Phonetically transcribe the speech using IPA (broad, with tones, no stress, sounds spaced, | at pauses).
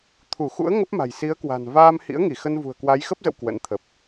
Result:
t̪ʰ u˧˩ x ṵ˧˥ ə̯ ŋ ə˦˥ p̚ m a̤˨˩ j s i˨˦ ə̯ k w a̤˨˩ n v aː˧ m h ḭ˧˥ ə̯ ŋ i˧˩ x ə˧ n v ṳ˨˩ ə̯ k w a˨˦ j x ə˦˥ p̚ z ə̰˧˨ w k w ə̰˧˥ n t̪ʰ ə˨˩ p̚